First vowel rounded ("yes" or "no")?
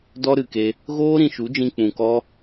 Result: yes